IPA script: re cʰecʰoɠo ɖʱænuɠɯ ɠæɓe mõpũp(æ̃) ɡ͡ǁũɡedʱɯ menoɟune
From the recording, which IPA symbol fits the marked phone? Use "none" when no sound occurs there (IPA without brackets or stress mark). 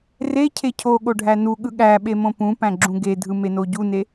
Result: æ̃